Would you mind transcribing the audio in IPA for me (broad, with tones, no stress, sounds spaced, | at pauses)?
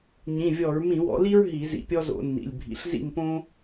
ɲ ĩ˩˧˩ vʲ ɔ˧˩˧ ɹ m ĩ˧˩˧ w ɔ̰˨˦ l i˥ ɹ ɦ i˧˩˧ z ḭ˧˩ pʲ ɔ˥ z o̰˧˩˧ nː ḭ˩˧˩ lʲ bʱ ḭ˩˧˩ ɬ z ḭ˥˨ m p õ˥